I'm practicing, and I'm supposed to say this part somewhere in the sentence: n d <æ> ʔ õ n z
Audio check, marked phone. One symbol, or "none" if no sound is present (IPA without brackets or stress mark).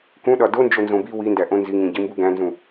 æ